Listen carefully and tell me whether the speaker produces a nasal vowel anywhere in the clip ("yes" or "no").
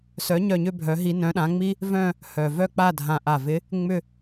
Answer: yes